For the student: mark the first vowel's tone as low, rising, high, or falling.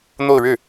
falling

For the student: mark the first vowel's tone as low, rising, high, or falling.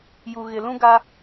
low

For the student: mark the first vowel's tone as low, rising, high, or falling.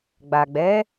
low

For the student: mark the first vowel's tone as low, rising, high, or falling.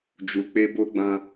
low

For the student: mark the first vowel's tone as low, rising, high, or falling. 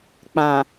low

